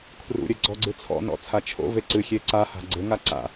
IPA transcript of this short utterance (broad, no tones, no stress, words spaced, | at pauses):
kʰrṵɾʲɘ ɡ͡ǀɔɡ͡ǀɨt͡sʰɔ̰nɔ̰ t͡sʰat͡ʃʰo̰ve ǀɨ xʲeǀaha̤ ɡ͡ǀɘŋa ǀa̰